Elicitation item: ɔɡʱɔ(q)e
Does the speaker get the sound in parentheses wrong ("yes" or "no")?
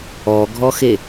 yes